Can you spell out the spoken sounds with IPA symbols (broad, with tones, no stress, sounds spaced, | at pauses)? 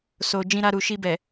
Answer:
s o˨ d͡ʒ ĩ˧ ɾ a˧ ɾ u˨ ʃ i˧ b ɛ˨